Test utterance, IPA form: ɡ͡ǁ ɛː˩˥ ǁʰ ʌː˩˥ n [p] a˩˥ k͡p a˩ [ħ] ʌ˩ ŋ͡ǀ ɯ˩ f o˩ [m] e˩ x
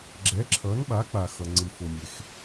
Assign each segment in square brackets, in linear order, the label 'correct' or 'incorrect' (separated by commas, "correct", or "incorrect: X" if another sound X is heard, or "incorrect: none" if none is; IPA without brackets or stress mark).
incorrect: ɓ, incorrect: x, incorrect: mʲ